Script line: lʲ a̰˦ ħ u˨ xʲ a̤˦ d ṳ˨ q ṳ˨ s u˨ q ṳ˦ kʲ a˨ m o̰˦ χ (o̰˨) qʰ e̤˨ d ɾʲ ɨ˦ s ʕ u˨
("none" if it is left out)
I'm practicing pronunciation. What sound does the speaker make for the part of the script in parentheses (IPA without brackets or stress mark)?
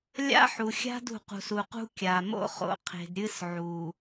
o̰˨